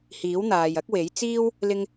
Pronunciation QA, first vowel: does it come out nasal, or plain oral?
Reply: oral